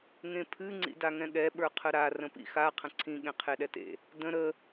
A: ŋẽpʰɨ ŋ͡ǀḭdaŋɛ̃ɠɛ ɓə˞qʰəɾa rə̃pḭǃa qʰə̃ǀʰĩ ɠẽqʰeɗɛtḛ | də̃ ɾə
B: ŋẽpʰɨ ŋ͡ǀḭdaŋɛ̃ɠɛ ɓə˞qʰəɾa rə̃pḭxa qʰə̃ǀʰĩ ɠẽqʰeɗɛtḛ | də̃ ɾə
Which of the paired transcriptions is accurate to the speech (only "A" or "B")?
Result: B